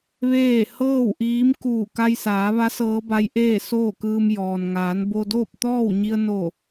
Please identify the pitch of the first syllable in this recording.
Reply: falling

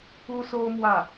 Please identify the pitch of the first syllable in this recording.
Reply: high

